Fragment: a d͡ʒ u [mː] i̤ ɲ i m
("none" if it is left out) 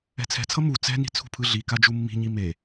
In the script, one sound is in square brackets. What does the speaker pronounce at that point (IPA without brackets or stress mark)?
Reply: mː